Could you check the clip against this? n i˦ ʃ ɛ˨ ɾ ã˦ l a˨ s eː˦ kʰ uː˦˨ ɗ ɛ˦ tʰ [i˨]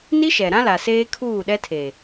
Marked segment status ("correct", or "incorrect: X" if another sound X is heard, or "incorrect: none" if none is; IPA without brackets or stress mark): incorrect: e˨